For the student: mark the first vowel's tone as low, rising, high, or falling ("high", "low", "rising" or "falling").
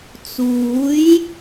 rising